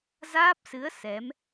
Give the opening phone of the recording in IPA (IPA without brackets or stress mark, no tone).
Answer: z